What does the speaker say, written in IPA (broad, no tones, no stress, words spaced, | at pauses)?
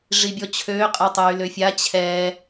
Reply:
ʐibʲɔt͡ɕʰøː qʼetˤyːløfʲa t͡ɕʰɛ